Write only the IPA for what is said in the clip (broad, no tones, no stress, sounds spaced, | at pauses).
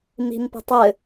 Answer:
m i̤ m p ə̤ tˤ ɘ